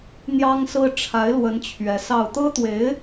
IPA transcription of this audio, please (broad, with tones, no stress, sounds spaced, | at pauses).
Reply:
n̪ j ɑ˥ ŋ s ɹ̩˥ ʈ͡ʂʰ a˧˥ ɪ̯ l w ə˧˥ n t͡ɕʰ ɥ ɛ˧˥ s ɑ˥˩ ʊ̯ t̪ ɤ˥ t̪ w e˧˥ ɪ̯